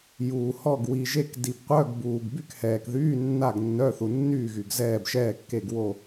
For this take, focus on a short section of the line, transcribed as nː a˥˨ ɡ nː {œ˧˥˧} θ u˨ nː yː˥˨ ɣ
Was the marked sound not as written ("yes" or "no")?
no